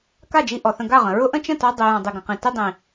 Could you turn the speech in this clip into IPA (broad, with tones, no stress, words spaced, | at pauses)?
ka˦˨d͡ʒi˧ ʔɔ˨θə̃˧ɡa˦˨ʁə̃˨ ɹʊ˦ʔə̃˦t͡ʃə̃˦˨tɔ˧ dˤi˨jɔ̃˨ dˤi˨ɡə̃˨qĩ˨ ti˧dˤĩ˨